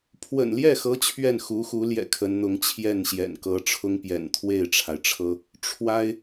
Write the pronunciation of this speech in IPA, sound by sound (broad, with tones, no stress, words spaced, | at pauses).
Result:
pʰwə̰˨˩nljɛ˥˩xɤ˧˥ t͡ɕʰɥɛ˥˩nxu˧˥xu˧˥ljɛ̰˨˩ kʰə˧˥nn̪ʊ˧˥ŋ t͡ɕʰjɛ˥˩nɕjɛ̰˨˩nkɤ˧˥ʈ͡ʂʰʊ˥ŋ pjɛ̰˨˩nt̪ʰwe˥˩ɪ̯ʈ͡ʂʰa˩ɪ̯ʈ͡ʂʰɤ˥ | ʈ͡ʂʰwa˥ɪ̯